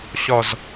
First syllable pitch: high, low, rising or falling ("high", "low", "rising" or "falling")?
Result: high